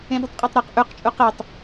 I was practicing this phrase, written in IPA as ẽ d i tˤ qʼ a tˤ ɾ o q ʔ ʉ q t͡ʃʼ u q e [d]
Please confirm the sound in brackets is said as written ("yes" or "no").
no